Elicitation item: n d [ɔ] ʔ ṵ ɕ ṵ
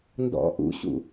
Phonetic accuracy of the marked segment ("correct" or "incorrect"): incorrect